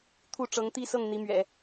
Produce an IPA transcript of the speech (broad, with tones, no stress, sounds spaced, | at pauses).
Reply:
t̪ʰ u˥˩ ʈ͡ʂ ɤ˧˥ ŋ t̪ i˥˧ s ɤ˥˩ ŋ n̪ i˧˥ m ɥ ɛ̰˨˩˦